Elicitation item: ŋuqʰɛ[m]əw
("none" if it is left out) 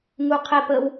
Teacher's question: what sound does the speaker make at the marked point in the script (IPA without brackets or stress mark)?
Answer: p